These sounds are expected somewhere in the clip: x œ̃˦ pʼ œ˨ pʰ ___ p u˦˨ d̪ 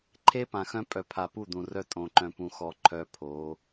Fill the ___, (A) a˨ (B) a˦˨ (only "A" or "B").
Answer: A